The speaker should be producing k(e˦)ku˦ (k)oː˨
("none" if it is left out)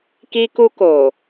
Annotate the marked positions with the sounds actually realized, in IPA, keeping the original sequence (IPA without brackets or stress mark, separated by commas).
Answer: i˦, k